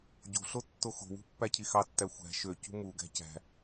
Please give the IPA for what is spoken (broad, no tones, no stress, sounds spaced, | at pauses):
ɟ o̤ ɬ o tː o x o̤ w ṳ pː æ cʰ i x ɑ tː æ xʷ æ̤ ʃ ø c ṳ m u ɡ æ̤ c æ̤